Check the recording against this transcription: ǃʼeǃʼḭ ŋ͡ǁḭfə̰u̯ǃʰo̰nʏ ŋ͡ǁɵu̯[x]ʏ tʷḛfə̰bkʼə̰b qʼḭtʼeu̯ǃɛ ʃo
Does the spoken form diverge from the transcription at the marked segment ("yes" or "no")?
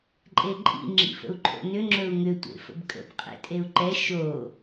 yes